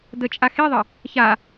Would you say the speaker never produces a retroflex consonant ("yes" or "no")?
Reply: yes